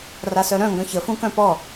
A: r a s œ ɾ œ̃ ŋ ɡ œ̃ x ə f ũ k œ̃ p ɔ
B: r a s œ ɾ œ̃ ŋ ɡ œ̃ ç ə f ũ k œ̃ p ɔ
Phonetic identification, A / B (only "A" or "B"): B